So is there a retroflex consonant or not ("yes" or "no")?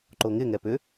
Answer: no